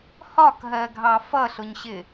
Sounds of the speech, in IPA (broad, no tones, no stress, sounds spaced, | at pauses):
h ɒ k ɦ ɜ ɡʱ ɑ f ʌ ɬ ʊ ɲ ɕ ɪ